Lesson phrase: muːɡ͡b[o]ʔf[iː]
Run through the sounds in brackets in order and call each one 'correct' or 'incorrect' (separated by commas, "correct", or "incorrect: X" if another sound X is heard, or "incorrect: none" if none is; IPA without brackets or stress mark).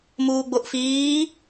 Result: correct, correct